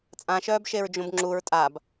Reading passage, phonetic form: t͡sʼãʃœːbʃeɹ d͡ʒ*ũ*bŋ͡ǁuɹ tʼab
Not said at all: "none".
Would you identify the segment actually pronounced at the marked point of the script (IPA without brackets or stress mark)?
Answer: ũ